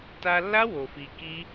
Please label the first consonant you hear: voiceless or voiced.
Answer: voiceless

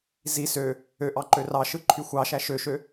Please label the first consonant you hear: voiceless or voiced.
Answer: voiced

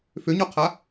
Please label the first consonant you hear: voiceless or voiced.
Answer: voiceless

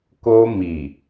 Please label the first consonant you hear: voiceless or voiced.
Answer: voiceless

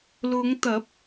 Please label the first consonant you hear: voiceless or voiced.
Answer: voiced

